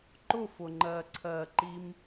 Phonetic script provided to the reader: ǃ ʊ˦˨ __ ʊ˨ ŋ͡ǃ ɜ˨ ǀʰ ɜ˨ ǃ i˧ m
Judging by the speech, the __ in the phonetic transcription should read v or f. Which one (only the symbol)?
f